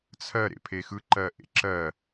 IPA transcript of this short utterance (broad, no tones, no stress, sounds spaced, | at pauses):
t͡sʰ ɜ ɾ ḛ pʰ e x ɯ ǃ ɜ ʔ ḛ ǁ ɜ